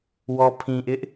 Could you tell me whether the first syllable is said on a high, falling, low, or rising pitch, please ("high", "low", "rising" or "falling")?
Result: low